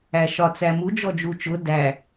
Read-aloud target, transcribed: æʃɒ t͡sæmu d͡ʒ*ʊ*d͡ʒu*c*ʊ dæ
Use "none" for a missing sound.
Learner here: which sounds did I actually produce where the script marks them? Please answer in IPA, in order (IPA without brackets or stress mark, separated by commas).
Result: ɔ, t͡ʃ